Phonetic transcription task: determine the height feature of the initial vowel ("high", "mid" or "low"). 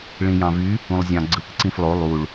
high